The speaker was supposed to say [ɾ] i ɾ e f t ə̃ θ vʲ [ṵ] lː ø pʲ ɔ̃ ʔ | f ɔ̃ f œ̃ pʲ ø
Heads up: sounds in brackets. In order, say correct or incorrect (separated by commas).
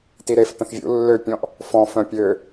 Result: incorrect, correct